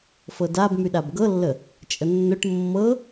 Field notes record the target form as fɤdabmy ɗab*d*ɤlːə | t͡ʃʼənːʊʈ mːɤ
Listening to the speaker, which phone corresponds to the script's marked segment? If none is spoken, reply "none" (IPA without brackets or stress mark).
ɡ